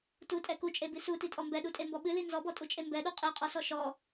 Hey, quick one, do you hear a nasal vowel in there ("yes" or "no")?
no